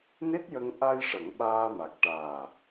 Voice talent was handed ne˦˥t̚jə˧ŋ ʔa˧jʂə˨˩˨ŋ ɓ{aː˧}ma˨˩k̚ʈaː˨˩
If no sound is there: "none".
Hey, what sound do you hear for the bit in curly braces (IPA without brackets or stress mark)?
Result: aː˧